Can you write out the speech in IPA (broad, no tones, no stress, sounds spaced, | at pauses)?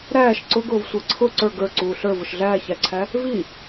ɾ æː ʃ ǀ ʊ ɡ ʊː v sʷ əː ǀʰ ʊ ǀ ə˞ ɡ ə˞ ǀ uː ɬ ə˞ v ʊ ʃ ɮ æː ç æ ǀʰ æ | v i